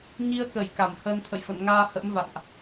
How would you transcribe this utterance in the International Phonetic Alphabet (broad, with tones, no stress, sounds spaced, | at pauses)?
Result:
ɲ i˧ ə̯ k ə˧˩ j k a˧˩ m h əː˧ n t̪ʰ ə̰˧˨ j f ə̰˧˨ n ŋ aː˧ h ə̰˧˥ m v a̰˧˨ n ʔ